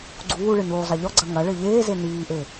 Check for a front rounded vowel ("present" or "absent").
absent